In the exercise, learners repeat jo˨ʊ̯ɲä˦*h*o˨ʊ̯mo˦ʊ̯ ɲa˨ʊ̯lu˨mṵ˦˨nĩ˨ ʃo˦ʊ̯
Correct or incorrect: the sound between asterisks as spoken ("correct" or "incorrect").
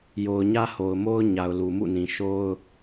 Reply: correct